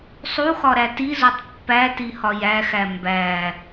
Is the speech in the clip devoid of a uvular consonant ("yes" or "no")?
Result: yes